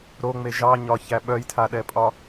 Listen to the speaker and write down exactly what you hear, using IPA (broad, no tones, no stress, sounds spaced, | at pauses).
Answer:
ɾ o ŋ͡m e ʒ ɑ ɲ ɒ ç æ ɓ œ j tʰ a ɗ ɛ pʼ ɒ